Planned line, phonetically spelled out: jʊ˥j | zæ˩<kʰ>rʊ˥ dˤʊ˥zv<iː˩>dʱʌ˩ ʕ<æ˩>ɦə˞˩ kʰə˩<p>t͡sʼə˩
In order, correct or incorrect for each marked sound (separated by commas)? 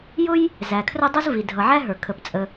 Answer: correct, incorrect, incorrect, correct